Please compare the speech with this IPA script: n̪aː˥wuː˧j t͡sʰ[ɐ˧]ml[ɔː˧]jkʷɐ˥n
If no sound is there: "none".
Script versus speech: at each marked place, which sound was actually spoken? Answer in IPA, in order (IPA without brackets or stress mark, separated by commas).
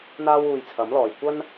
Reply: ɐ˨˥, ɔː˨